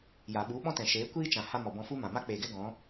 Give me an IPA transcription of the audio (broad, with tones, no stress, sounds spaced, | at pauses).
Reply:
j a˨ ɓ u˨˦ ɓ ɔ̃˦ t ɛ̃˨ ʃ eː˨˦ kʷ iː˦ t͡ʃ ã˨ h a˦ m ɔ˨ b ɔ̃˧ f u˦ m ã˨ m a˦ k͡p eː˨ ɡ ɛ˦ ɡ ɔ̃˨˦